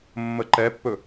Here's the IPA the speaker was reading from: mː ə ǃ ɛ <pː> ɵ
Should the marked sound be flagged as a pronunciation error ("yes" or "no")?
no